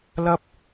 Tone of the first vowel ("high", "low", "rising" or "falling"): high